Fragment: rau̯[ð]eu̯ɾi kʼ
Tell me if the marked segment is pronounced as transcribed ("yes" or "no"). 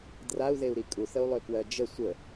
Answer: yes